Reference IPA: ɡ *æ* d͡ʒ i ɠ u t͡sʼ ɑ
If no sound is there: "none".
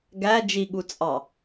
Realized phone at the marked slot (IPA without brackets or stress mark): æ